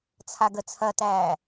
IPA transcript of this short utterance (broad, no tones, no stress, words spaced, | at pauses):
t͡sʰaɡət͡sʰɐtæː